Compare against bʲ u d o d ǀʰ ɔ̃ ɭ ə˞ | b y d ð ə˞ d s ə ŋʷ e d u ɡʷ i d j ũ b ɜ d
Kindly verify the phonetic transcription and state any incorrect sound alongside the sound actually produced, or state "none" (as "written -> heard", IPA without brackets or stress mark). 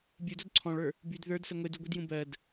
none